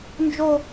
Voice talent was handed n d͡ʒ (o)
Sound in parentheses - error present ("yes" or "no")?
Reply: no